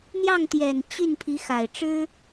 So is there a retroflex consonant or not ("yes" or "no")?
yes